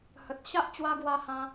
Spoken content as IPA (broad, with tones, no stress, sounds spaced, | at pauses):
h ə˨ t̚ ɕ a˦ ʔ t͡ɕ w a˦ ɡ w a˦ h ã˦